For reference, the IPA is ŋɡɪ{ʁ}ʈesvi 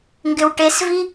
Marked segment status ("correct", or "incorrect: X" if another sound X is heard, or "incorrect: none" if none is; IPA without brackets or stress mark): incorrect: w